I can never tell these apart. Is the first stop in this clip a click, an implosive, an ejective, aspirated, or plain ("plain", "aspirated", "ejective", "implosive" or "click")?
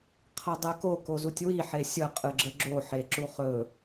aspirated